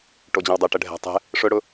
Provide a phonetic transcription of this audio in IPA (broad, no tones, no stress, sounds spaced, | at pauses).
ʈ o d͡ʑ ə̃ w dˤ ɘ ʈ ə ɖʱ ɛ̤ tˤ ɛ̤ | ʂ ʊ ɽ ʊ